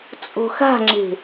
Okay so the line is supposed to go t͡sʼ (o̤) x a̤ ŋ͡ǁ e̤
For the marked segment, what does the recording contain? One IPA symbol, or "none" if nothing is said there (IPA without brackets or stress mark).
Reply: o̤